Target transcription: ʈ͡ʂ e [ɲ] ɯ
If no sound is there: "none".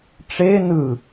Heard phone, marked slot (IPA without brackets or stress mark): n